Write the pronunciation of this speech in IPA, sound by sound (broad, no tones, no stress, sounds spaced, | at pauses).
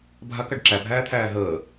bʱ a k a ɖ ǁ æ bʱ æː t̪ʰ æː ɦ əː